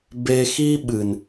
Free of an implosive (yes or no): no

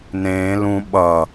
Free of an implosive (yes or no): no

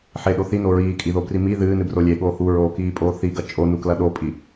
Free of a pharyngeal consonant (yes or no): no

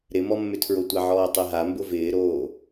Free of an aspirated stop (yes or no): no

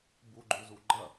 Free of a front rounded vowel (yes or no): yes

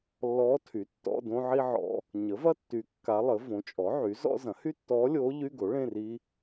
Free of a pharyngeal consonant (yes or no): no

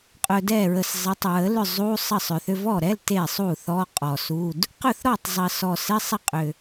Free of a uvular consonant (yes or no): no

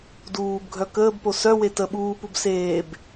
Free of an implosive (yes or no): no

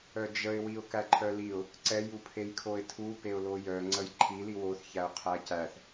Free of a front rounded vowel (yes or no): no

